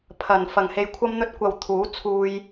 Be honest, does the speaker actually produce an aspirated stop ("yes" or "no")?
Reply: yes